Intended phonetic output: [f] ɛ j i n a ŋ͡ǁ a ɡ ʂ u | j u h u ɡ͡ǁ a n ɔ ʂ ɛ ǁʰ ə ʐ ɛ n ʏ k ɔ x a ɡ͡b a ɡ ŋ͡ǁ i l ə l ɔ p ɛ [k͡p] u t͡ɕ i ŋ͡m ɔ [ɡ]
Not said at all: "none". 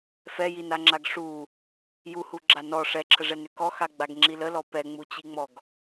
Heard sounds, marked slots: f, ŋ͡m, ɡ

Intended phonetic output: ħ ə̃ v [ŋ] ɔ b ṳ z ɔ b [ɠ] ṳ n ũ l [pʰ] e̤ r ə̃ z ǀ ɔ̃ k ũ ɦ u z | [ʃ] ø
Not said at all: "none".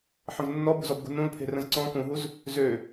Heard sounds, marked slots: nː, ɡ, pʰ, z

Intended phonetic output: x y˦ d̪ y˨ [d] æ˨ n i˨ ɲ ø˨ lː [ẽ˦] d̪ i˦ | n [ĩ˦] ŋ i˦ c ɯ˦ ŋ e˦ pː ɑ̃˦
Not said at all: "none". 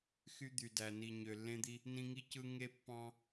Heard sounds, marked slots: d, ẽ˦, ĩ˦

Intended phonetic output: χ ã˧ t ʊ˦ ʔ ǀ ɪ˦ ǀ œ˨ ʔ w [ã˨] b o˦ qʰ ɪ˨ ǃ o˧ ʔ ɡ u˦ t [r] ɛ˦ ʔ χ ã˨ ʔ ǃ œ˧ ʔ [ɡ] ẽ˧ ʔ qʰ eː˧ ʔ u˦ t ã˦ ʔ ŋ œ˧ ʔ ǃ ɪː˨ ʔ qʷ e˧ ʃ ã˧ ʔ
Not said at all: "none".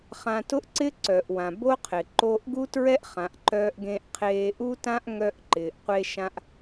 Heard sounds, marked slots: ã˨, ɹ, ɡ

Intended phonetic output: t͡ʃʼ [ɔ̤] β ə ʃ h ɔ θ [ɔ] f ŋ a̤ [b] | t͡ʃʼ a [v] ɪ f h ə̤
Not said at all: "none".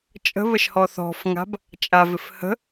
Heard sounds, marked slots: ə̤, ɔ̤, b, v

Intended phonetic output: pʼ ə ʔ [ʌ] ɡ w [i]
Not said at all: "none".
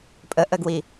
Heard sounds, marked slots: ə, i

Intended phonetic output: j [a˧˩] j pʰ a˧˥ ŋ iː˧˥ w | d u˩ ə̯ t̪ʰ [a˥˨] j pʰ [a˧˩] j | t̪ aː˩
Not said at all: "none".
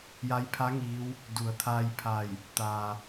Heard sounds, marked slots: a˧˥, a˧, a˧˩

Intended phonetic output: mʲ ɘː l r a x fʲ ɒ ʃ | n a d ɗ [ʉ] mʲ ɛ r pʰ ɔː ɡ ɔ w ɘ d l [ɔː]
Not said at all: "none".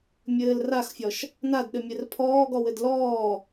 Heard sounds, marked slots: ɘ, ɔː

